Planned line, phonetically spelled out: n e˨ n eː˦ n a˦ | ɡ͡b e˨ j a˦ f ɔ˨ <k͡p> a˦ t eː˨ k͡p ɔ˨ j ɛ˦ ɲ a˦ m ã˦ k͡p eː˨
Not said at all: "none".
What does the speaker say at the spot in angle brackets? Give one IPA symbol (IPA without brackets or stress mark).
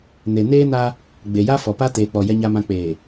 p